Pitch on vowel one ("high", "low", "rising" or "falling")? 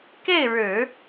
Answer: falling